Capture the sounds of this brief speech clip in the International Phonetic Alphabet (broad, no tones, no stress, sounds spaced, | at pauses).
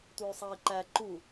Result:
tʷ œ y̯ sˤ ɑ i̯ ǃ æ ǃ u